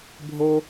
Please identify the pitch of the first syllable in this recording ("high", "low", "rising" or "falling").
high